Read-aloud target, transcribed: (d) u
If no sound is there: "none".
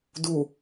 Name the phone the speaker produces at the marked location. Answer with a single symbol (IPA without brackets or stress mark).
d